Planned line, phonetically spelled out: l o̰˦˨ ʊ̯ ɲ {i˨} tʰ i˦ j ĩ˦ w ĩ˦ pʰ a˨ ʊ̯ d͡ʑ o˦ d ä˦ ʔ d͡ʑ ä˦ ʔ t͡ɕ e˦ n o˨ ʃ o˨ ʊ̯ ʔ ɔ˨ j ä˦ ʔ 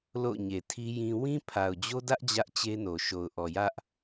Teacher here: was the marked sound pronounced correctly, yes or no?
no